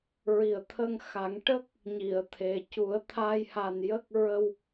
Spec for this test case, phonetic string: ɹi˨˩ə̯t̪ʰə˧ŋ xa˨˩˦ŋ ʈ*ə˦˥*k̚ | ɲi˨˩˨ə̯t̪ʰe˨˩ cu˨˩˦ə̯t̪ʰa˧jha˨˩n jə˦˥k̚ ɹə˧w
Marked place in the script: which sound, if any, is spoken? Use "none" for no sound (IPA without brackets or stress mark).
ə˦˥